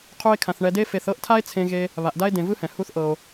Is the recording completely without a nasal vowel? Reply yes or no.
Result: no